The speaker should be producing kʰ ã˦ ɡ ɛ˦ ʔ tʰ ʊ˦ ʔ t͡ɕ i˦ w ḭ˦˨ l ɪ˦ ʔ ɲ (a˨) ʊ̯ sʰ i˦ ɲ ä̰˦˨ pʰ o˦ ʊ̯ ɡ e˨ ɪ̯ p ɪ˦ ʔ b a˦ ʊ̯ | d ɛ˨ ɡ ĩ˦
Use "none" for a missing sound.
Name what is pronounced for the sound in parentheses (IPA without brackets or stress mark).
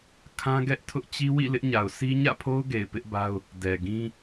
a˨